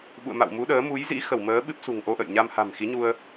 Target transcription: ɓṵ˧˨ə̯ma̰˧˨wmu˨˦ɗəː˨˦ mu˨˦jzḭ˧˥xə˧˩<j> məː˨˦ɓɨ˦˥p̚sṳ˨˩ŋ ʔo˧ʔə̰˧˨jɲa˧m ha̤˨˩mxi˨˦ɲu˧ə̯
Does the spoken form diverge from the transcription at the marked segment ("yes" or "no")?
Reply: yes